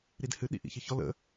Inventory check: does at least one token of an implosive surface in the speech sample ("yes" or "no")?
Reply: yes